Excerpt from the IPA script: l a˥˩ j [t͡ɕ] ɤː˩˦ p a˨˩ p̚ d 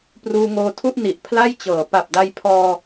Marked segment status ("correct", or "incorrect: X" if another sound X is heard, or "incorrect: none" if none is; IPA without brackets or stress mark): correct